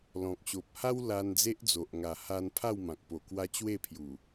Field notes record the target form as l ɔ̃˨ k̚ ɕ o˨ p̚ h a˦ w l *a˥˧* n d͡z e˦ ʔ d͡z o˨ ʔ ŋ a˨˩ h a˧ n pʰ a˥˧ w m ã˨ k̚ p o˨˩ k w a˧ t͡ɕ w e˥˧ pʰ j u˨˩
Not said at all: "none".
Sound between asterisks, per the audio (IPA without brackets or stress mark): a˧